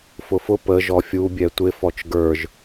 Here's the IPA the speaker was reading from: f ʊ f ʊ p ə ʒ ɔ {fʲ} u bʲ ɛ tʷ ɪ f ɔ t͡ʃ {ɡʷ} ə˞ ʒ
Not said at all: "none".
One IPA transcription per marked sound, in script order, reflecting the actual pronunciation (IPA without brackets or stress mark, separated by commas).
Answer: fʲ, ɡ